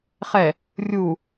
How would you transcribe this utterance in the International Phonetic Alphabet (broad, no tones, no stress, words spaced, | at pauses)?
χɛ | rʲu